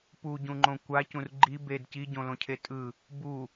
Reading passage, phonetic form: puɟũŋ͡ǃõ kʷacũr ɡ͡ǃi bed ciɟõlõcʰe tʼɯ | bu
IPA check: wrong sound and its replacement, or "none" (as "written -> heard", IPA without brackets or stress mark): none